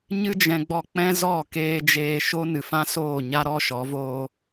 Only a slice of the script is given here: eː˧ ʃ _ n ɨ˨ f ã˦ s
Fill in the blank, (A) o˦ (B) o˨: A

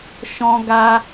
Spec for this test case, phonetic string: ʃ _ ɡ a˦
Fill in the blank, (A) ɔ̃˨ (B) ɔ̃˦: B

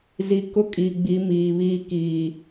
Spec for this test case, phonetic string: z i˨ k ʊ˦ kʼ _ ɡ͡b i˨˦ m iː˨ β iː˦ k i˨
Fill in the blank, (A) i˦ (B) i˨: B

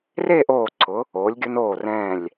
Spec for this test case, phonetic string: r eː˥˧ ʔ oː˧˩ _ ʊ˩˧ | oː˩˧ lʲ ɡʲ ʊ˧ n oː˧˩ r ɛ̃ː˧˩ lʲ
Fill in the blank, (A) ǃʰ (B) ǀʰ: B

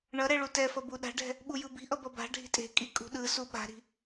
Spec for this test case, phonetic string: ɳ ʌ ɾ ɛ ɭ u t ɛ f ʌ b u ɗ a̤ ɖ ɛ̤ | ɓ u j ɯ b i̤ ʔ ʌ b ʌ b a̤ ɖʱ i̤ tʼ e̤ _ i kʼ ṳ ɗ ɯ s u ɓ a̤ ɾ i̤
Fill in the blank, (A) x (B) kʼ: B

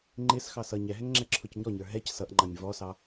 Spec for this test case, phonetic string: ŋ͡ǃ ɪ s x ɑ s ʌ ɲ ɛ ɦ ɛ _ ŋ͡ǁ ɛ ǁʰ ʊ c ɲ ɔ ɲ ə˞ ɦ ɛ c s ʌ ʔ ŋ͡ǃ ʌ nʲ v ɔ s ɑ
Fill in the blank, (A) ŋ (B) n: A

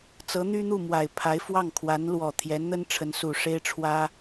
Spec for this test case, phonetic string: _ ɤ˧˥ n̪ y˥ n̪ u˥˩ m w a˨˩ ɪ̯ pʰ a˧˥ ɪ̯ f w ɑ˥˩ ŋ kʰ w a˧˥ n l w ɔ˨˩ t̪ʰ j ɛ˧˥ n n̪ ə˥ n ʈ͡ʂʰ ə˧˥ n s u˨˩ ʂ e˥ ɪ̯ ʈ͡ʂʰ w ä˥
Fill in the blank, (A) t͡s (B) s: A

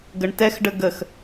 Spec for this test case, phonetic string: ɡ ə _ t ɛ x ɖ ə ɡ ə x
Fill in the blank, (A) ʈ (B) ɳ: B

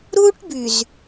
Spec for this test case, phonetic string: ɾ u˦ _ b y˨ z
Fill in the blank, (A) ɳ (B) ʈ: B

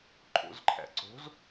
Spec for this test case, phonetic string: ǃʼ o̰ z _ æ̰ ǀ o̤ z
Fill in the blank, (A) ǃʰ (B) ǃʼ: A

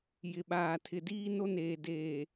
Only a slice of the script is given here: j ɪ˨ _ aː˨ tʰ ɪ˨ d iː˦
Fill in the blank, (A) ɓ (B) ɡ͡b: A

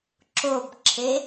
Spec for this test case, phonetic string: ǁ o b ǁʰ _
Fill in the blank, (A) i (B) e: B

